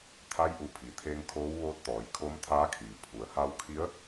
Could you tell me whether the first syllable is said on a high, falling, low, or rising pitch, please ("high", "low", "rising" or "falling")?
rising